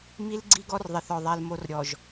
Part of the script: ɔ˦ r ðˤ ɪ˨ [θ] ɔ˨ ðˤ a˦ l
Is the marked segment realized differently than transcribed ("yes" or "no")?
no